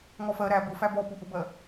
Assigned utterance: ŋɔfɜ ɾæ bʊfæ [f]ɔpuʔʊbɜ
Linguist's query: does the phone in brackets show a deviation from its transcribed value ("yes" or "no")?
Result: yes